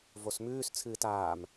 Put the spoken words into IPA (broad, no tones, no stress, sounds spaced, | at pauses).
v o s m ʉː s t͡sʰ ɨː t aː m